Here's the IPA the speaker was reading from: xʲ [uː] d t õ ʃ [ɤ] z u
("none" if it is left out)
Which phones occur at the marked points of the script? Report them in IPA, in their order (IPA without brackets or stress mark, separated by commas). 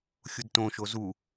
u, o